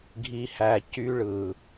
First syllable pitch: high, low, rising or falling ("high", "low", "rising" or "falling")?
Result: low